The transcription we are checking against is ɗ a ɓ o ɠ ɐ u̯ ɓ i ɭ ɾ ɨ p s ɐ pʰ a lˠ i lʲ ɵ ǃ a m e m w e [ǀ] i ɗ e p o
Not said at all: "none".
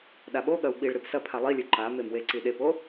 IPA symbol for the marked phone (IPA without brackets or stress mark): ǀ